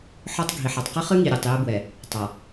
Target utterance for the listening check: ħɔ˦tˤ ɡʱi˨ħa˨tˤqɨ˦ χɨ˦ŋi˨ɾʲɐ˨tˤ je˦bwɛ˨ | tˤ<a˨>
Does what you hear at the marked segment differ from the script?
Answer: no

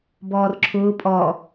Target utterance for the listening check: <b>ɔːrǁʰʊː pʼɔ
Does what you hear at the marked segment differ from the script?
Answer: no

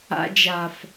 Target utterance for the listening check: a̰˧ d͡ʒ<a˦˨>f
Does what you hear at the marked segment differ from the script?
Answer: yes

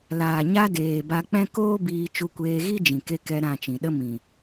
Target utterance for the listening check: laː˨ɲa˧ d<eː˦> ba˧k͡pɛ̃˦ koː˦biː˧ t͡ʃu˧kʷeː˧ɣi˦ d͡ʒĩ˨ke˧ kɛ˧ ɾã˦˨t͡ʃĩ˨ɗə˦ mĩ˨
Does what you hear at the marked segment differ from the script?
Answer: yes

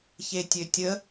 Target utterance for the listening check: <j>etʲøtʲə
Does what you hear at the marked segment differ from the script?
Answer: yes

